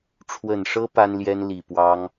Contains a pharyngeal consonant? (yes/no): no